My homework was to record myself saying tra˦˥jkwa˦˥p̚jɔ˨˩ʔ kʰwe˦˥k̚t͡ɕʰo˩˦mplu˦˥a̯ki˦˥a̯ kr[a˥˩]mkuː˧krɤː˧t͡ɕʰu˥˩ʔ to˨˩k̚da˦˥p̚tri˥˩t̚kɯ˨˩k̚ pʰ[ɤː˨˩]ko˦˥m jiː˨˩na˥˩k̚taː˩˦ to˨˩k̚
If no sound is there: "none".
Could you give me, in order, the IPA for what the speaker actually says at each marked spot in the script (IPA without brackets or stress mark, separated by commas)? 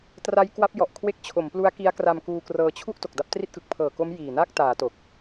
a˧, ɤː˨˩